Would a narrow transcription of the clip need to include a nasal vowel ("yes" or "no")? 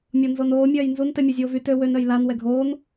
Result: no